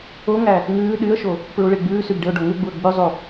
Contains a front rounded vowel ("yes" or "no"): yes